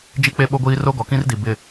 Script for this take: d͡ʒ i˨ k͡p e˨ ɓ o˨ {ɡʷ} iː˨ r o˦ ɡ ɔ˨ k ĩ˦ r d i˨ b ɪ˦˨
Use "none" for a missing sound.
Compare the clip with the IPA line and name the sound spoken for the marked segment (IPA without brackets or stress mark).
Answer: ɡʷ